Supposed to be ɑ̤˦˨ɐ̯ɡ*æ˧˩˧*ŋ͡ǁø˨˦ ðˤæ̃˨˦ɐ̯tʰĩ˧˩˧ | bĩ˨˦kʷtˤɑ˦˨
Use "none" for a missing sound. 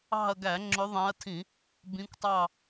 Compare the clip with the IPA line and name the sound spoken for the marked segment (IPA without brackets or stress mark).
æ˧˩˧